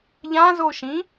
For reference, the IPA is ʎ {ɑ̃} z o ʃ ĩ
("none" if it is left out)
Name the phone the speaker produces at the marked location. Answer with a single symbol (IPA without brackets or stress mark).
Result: ã